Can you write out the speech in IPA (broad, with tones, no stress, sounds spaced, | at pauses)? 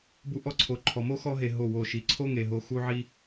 b u˦ ʔ ɔ˦ ǀʰ o˧ ǃʰ ɔ˨ m o˦ x ɔ˧ ɦ e˨ ɦ o˦˨ w o˦˨ ʃ i˧ ǀʰ o˦ ŋ e˨ ɦ o˧ x u˦ ʕ i˦